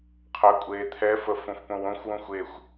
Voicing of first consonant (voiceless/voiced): voiceless